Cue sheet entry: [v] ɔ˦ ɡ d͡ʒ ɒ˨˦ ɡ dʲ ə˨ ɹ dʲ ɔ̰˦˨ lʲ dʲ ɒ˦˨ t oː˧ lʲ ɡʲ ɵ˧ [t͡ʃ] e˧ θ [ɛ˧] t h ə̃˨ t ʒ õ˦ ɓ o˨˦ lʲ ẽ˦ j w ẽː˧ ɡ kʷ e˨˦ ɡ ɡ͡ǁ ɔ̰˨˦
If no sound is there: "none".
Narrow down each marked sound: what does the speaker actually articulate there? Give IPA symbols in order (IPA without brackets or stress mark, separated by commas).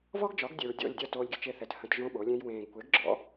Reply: v, t͡ʃ, ɛ˨